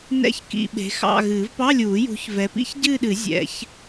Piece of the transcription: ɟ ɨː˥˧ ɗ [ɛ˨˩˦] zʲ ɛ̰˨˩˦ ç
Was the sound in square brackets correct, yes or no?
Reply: no